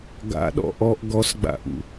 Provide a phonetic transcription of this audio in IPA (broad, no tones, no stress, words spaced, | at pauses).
ɡa̰ɗɔ̰ ʔɔʔ ɡɔsɡ͡ba̰ʔṵ